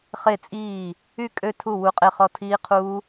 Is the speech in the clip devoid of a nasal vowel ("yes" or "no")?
yes